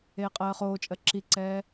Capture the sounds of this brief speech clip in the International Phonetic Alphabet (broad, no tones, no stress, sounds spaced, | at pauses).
eː qʼ ɜː χ oː t͡ʃʼ ɜ ǁ i ǀ ɛː